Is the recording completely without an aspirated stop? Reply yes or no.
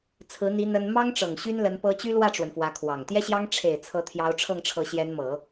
no